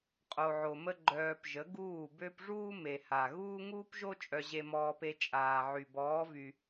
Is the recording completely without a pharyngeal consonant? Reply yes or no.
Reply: no